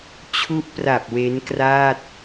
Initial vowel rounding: rounded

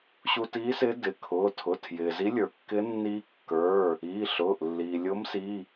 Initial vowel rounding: rounded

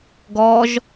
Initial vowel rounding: rounded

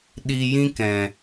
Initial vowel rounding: unrounded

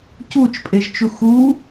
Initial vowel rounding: rounded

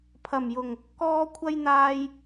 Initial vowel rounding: unrounded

